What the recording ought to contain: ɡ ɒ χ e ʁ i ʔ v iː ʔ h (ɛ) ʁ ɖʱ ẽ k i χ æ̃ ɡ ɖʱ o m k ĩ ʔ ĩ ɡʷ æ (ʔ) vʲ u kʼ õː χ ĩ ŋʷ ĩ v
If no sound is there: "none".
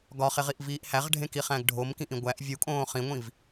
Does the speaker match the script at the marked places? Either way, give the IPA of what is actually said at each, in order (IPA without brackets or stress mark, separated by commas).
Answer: æ, ʔ